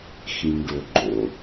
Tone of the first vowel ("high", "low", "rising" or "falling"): low